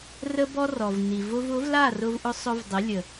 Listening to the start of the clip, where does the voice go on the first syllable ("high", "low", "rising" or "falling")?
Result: high